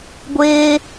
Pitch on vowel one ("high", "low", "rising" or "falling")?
high